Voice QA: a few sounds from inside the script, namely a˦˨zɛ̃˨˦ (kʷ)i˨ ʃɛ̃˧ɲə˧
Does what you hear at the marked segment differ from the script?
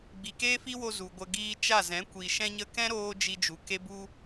no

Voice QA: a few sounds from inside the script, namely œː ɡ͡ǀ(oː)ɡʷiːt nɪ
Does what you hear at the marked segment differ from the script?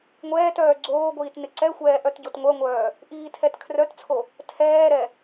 no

